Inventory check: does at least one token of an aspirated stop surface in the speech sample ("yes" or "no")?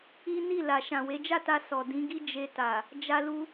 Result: no